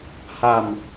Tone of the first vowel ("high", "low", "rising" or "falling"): low